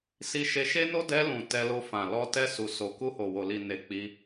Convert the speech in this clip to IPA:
s i˧ ʃ e˧ ʃ e˦ n o˦ d ɛ˧ l ũ˨ t ɛ˧ l o˧ f ã˨ l ɔ˧ t ɛ˧ s u˨ s o˨ k u˧ h o˨ w o˨ l i˨ n e˨ k͡p i˧

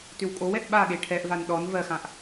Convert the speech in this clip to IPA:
t ʏ w kʼ o w ɛ ʔ ɓ a ɠ e ʈʰ ɛ ʔ v a n ɗ ɔ n v ɜ x ã ʔ

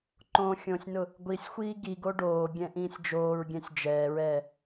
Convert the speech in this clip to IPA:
ǃ õ xʲ õ sʲ n ʊ | ɡʷ i sʲ xʷ iː ɡ i ɡ o ɖ oː ɡʲ ɛ̃ ʔ ĩː sʲ d͡ʒ oː ɹ ɡʲ ɛ̃ sʲ d͡ʒ ɛː ɹ ɛː

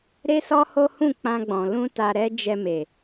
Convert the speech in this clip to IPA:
ɾ e˦ s ɔ˦ h o˦ h ũ˦˨ k͡p ã˧ ɡ͡b ɔ̃˨ l ũ˧ t a˧ ɾ ɛ˦ d͡ʒ ɛ˧ m e˨

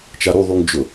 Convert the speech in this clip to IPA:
t͡ʃ a ɾ u ðˤ u ŋ d͡ʒ ʊ

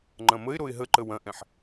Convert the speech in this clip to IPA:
ŋ͡ǃ ɐ̃ m ə ɪ̯ ɾ o ɪ̯ ɦ ə ǃ ə w ɐ̃ ʔ ɛ̃ ħ

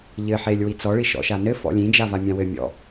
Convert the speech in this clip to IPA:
ʎ ɘ ħ e lʲ w i t͡s ɔ ɭ i ʃ ɔ̰ ʃ a n ɘ f ɔ̰ lʲ ĩ d͡ʒ a v a mʲ ã w ɘ mʲ ɔ̰

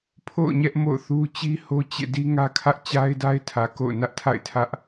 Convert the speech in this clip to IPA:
pʰ o̰˦˨ ʊ̯ ɲ ɛ˦ ʔ m o̰˦˨ ʊ̯ θ u˦ t͡ɕ i˦ h o˦ t͡ɕ ḛ˦˨ d i˦ ŋ ä˦ kʰ ä˦ ʔ t͡ɕ a˦ ɪ̯ d a˦ ɪ̯ tʰ ä˨ k o̰˦˨ ʊ̯ n ä˦ ʔ tʰ a̰˦˨ ɪ̯ tʰ ä˦ ʔ

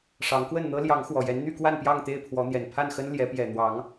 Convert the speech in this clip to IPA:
ʂ ɑ˨˦ ŋ k w ə˥˨ n n̪ ɤ˦ l j ɑ˨˦ ŋ x w ɔ˨˩ j ɛ˨˦ n n̪ y˥˨ k w a˥˨ n p j ɑ˥˨ ŋ t̪ e˥˨ ɪ̯ pʰ w ɔ˨˦ n̪ j ɛ˨˩ n pʰ a˥˨ n x ə˦ n l j ɛ˨˦ p j ɛ˨˩ n̪ w ɑ˨˦ ŋ

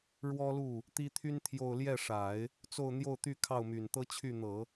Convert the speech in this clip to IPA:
ɻ w ɔ˥ l u˥˩ | t̪ i˥ t̪ʰ y˥ n t̪ʰ j o˥˧ ʊ̯ l j ɛ˥˩ ʂ a˨˩˦ ɪ̯ | t͡s o˥˧ ʊ̯ n̪ j o˥˧ ʊ̯ t̪ y˥˧ kʰ ɑ˥˩ ʊ̯ m y˨˩ n t̪ ɤ˥ t͡ɕʰ y˥˩ n̪ ɤ˨˩˦

